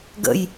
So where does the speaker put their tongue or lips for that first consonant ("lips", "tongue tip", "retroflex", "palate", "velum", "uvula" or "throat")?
velum